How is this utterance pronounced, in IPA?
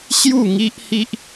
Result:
ɕju˥˧ŋi˦ʔhi˦ʔ

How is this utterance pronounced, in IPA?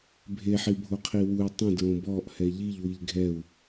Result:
bʱe ħibʱoqʰiwui̯ tˤẽ dɹõbɔʔ hɛʎiʎ wiʎɡʱɛu̯

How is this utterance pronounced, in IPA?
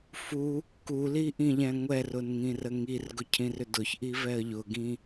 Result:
fu | kuli ʔĩʎɛ̃ŋʷɛrʊn ŋĩrəŋirɡʊ cʰĩrʏdʊçʔi vɛə̯ʎʊɡĩ

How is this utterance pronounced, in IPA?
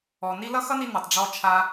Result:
ɔ˨ ni˧lʌ˦xʌ˦ni˧ nʌ˨tˤɖ͡ʐɔ˧t͡ʃʰa˧

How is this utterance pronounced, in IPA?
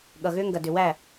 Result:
ɠʌ˨ɣʏː˦ŋɡɐ˨ dʏ˨wæ˦˨

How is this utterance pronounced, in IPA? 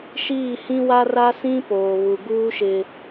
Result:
ʃiː˦˨hĩ˦wa˦ra˦ sĩ˦ poː˨βu˨ɡuː˦ ʃɪ˦

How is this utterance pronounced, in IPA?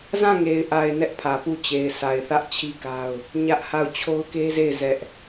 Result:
zã˦˨ŋe˨ɪ̯ʔa˨ɪ̯ nɛ˦ʔpʰä˨pu˦˨ t͡ɕe˨ɪ̯sʰa˨ɪ̯θä˦ʔ t͡ɕʰi˦ka˦ʊ̯ | ɲä˦ʔha˦˨ʊ̯ t͡ɕʰo˦ʊ̯ke˦ze˦˨ɪ̯ zɛ˦ʔ

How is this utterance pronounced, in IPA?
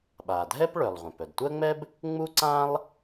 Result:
ɓa˩dʱɛ˥p ɭœ˩lˠʁʷœ̃˩p œ˩dtʷɜ˥ŋ͡mɛ˥b | ŋ͡mu˥ǀã˥lˠ

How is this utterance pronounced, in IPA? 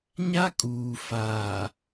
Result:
ɲa˦kʼuː˨ faː˨

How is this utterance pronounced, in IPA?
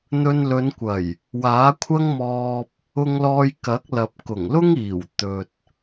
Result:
n̪ɵ˧nlɵ˨˧nkʷɐ˨˩j | waː˨˥kʷʰɐ˥ŋmɔː˧p̚ | ʊ˧ŋlɔː˧jkɐ˨˥k̚lɐ˨p̚ kʊ˨˩ŋlʊ˥ŋiː˨˩w t̪ɵ˨t̚

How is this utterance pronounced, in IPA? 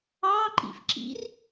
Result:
ɑǃḭf ǁḭr

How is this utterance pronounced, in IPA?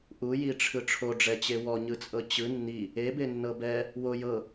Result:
ʔujiʈ͡ʂʰɯ ʈ͡ʂʰoɖ͡ʐɛt͡ɕe wɔɲɯt͡sʼɤ t͡ɕɯ nːi | ebenːɤ bɛ | wo jɤ

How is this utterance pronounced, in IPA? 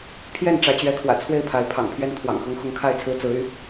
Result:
pʰjɛ˥˨nʈ͡ʂä˨˦ t͡ɕɥɛ˨˦kʰwä̰˨˩ t͡sʰwe˥˨ɪ̯pʰa˨˦ɪ̯ pʰɑ̰˨˩ŋpʰɥɛ˦nt̪ʰwɑ̰˨˩ŋ xʊ˦ŋxʊ˦ŋkʰa˥˨ɪ̯t͡sʰɹ̩˦ t͡sɹ̩˨˦y˨˦

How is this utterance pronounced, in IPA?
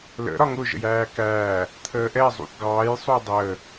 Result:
lə̰ ɾɒŋʊ ʒə̰jæːkæː | t̪ʰəːʔɛ zˤṵθɡɑːj sˤujdˤəː

